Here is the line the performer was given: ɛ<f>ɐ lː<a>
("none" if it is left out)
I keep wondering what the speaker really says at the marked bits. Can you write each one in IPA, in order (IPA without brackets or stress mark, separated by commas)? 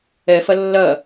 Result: f, ɐ